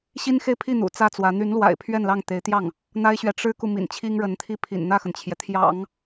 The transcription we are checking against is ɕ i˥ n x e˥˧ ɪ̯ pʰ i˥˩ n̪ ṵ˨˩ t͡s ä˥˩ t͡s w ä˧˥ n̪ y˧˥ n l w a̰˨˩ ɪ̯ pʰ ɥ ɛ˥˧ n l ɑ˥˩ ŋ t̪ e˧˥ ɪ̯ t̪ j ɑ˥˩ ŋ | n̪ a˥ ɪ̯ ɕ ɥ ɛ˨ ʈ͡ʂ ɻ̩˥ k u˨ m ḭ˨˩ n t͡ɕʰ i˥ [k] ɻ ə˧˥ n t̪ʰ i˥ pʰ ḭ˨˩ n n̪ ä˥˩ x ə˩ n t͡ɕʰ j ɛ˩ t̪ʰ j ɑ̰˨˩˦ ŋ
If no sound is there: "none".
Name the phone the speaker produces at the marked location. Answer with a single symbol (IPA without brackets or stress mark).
ŋ